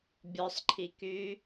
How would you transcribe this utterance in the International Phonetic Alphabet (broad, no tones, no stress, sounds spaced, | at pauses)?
bʲ ɔ sˤ ǃʰ i k y